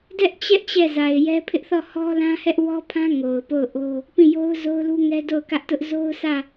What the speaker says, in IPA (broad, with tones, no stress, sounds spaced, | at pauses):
d ɛ˦ ʔ t͡ɕ ɛ˦ ʔ t͡ɕ ɛ˦˨ z a˨ ɪ̯ j ɛ˦ pʰ ɪ˦ ʔ θ ɔ˦˨ h ɔ˦ l ã˦ h ɛ˦ ʔ w ɔ˦ pʰ ã˦ ŋ o˨ ʊ̯ p o˦˨ ʊ̯ ʔ o˦ | p ĩ˦˨ j o˦ ʊ̯ z o˦ ʊ̯ l u˦ ŋ ɛ˦ d o˦˨ ʊ̯ k ä˦ ʔ t ʊ˦ ʔ z o˦ ʊ̯ s ä˦˨